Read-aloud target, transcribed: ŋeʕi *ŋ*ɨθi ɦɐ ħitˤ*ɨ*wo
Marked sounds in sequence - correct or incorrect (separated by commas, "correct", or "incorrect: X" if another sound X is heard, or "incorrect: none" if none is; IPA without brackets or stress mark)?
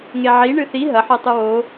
incorrect: ɳ, correct